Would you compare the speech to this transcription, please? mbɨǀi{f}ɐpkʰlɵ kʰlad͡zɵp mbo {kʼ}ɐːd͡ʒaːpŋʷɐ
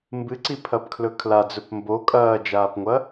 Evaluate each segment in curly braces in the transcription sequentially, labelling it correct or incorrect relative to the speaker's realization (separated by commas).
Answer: incorrect, correct